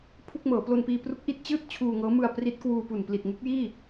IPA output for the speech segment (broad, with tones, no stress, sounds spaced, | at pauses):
pʰ u˥˩ k̚ m ɤː˩˦ p l o˧ n p iː˧ p r u˦˥ k̚ ʔ i˦˥ t̚ t͡ɕ ɯː˥˩ t̚ t͡ɕʰ uː˧ ŋ ɤː˦˥ m ɯ˧ a̯ p r i˦˥ t̚ k w uː˧ p u˨˩ n p l i˨˩ t̚ ŋ u˦˥ k̚ j iː˥˩